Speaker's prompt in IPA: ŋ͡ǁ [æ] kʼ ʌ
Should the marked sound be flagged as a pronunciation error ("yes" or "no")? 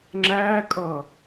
no